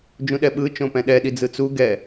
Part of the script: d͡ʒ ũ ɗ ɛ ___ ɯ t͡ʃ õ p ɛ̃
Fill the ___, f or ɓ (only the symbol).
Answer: ɓ